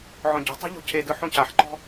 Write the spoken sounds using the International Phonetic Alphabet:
ʕ ɔ̃ ɟ ɔ̤ tˤ ɛ̤ ʎ o̤ cʰ e d ɯ ħ õ c a ħ ǃ ɔ̤

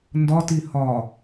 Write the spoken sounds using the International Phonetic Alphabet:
n d ɒ t i h ɒ

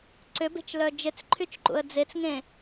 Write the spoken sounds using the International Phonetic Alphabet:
ǀ ʏ b e̤ t͡ʃ l œ d͡ʒ ɪ t͡s ǃʰ y t͡ʃ ǃ ṵ ə̯ d͡z e t͡s ŋ ẽ

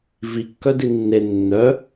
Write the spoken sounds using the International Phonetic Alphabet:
v i kː œ d i nː e nː œ

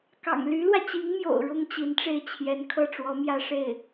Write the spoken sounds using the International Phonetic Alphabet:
k ɑ̰˨˩ ŋ l y˧˥ l w ä˧ t͡ɕ i˧˥ ŋ m j o̰˨˩ ʊ̯ ɻ ʊ˥ ŋ t͡ɕ i˧˥ n ʈ͡ʂ e˥˩ ɪ̯ t͡ɕʰ j ɛ˧˥ n kʰ ɤ˥˩ ʈ͡ʂ w ɔ˧˥ m j ä˥ ʂ e˥˩ ɪ̯

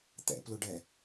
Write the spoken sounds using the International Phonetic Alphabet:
t̪ ɛ̰ p l ʊ ɖ ɛ

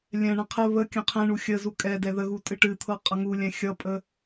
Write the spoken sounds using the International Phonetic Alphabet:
lʲ ɛ̃ ɳ ə̃ qʰ ə β ə kʲ ə̃ qʰ ɛ̃ ɳ u xʲ ə z u kʼ ɛ d ɛ ð ə ɣ u tʼ ɨ ʈ ɨ t̪ʰ ɤ qʼ ʌ ŋ u lʲ ɛ̃ xʲ ʌ pʼ ə

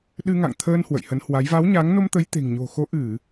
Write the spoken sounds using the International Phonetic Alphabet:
ɗ ɨ˧ ŋ a̰˧˨ ŋ t̪ʰ əː˧ n h w ə̰˧˨ j h ə˨˦ n h w a˨˦ j v a˨˦ w ɲ a˨˦ ŋ n o˧ m t̪ ə˨˦ j t̪ e̤˨˩ ŋ ɲ o̤˨˩ x o˨˦ ʔ ɨ˧˩˨

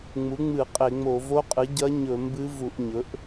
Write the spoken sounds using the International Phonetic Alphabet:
ŋ͡m u˩˥ ŋ͡m ɨ˧˩˧ qʼ e˧˩˧ ŋ͡m o˧˩˧ v o˧˥ qʼ ɨ˩˥ ɟ ɐ˧˥ ɲ ɵ˧˩˧ m b ɨ˧˥ v u˧˩˧ ʔ ɲ ɵ˩˥ ʔ

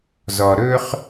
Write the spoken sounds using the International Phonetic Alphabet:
z ɔ˨ ɾ ɵ˦ χ

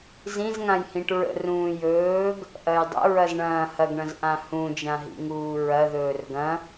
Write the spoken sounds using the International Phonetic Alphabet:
z ĩ z ŋ ã j h ĩ ʈ ɹ ə̰ r ũː j ɵː ɡ | ʔ ɐ j dˤ ə̰ ɹ ɐ z ɳ ɐ̃ː h ɐ ɡ ɳ ɐ̃ z ʔ ã h ũ d͡ʒ ã ɦ ḭ ŋ uː ɹ ɐ ð ɵː r ɡ ɐ̃

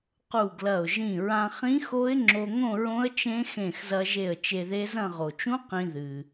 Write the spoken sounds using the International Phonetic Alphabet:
q u˧˩ ɡ l ɐ˧˩ ʊ̯ ʒ ĩ˧˩ ɹ ã˧ χ ĩ˦˥ x o˦˥ ɪ̯ ŋ͡ǁ o˧ ŋ õ˥˧ ɹ õ˦˥ ə̯ t͡ʃ ẽ˦˥ x ẽ˧˩ x z ɐ˧ ʒ e˧˩ ə̯ t͡ʃ e˧ ð e˦˥ z ɐ̃˥˧ ʁ o˩ t͡ʃ ũ˦˥ q ĩ˧ ð ɨ˩

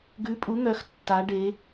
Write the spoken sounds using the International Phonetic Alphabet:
ɡ ʉ˨˥ pʼ u˨˥ n̪ œ˨˥ x tː a˩˧ ɖ e˩˧

